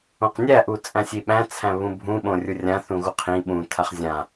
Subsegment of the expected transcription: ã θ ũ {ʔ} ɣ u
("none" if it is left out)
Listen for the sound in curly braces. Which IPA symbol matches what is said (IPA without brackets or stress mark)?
none